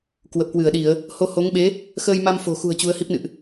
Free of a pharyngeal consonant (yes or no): yes